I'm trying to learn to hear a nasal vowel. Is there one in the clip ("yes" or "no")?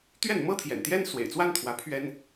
no